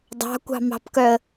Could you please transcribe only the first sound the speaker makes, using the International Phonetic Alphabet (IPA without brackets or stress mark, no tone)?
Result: dˤ